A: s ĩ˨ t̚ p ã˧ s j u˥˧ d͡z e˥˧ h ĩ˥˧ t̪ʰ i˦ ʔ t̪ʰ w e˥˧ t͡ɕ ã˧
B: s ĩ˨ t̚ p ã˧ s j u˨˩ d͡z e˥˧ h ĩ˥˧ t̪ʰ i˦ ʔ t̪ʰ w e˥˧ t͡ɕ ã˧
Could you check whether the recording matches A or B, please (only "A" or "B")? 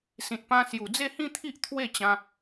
B